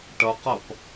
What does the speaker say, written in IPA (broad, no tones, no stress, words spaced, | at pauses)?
ʈʌqʌp